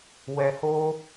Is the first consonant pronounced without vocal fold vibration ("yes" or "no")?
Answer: no